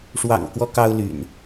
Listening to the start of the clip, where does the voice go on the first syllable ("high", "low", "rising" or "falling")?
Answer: low